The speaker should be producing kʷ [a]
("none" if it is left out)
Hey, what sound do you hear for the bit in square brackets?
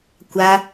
a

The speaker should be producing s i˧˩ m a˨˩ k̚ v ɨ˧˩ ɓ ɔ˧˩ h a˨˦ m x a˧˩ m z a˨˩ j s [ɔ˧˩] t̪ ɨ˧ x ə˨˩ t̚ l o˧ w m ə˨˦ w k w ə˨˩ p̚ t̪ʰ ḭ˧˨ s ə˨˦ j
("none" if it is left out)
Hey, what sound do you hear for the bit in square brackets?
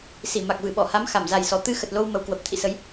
ɔ˧˩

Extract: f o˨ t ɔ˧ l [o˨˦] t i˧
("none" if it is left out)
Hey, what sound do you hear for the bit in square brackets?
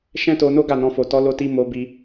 o˧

